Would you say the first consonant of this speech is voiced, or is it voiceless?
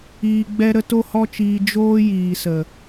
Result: voiced